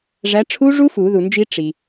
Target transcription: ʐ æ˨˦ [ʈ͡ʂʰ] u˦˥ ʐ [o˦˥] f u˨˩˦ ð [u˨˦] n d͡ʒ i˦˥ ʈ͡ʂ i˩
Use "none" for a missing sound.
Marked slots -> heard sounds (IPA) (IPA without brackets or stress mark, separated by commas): ʈ͡ʂʰ, u˦˥, u˩